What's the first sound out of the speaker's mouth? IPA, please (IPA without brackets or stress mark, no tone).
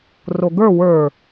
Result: r